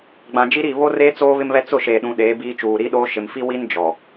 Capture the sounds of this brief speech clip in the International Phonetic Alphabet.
ɡ͡b ã˨ d͡ʒ i˦ ɾ i˦˨ β o˦ r eː˦ t͡s oː˦ β ɪ˦ m β ɛ˦ t͡s ʊ˦˨ ʃ eː˨ ɗ ũ˨ ɗ eː˨˦ b iː˦ t͡ʃ uː˨ ɾ i˦ ɗ oː˦ ʃ ɪ˨ m f i˦ w i˦ n d͡ʒ ɔ˨

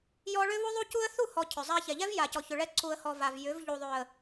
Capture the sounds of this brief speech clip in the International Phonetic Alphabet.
j ɔ˦ ɭ ʏ˦ β u˦ ðˤ u˦ c u˦ ə̯ θ u˦˨ h ɔ˨ cʰ ʏ˨ zˤ a˦ ç ɛ˨ ʎ ɛ˦ v j a˨ c ɔ˨ ç ʏ˨ ɭ ɛ˦ ǀ u˨ ə̯ h ɔ˨ v a˨ v j ʏ˨˦ v ʎ u˨ ðˤ ʏ˨ ə̯

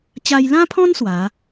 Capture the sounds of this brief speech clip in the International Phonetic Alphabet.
t͡ɕ a˧ j l ã˦ pʰ ɔ̃˦ n s w a˨˦

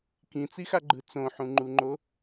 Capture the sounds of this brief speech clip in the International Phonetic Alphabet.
k ĩ t͡s i x a ɡ͡ǃ ɯ t͡s õ ħ ũ ŋ͡ǃ u ŋ͡ǃ o

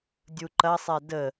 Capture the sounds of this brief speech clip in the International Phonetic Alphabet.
dʲ u ǃ ɐ sˤ ɛ d ə

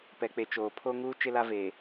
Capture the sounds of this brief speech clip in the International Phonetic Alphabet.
p ɛ˨ k͡p e˨ t͡ʃ oː˨ pʰ o˦ ŋ uː˦ t͡ʃ ɪ˦ l a˦ v eː˨

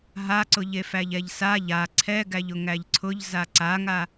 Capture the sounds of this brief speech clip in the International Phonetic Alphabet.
ɦ a ǀ ʊ ʎ e f æ ʎ ɛ ʎ s a ʎ a ǀʰ ɛ ɡ æ ʎ ʊ ŋ æ ʎ ǀʰ ʊ ʎ z a ǀ a ŋ a

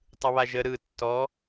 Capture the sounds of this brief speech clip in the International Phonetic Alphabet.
tˤ ɯ β a ʒ ə ɾ ɯ tː ɔ

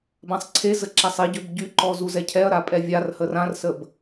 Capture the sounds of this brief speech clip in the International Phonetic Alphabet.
b ã sˤ ǀʰ e z ə ǁ a sˤ i ɟ ø b ɟ y ǃ ɔ z u z ɛ cʰ ɛ ɐ̯ ɾ a pʼ ɛ vʲ a r h ə r ã r s ə b

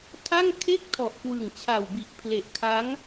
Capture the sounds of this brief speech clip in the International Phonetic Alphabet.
tʰ a˥˩ ŋ kʰ e˥˩ k̚ tʰ ɔ˨˩ ʔ k w ɯ˨˩ ŋ t͡ɕʰ a˨˩ w b i˨˩ ʔ pʰ l e˨˩ ʔ kʰ a˦˥ ŋ

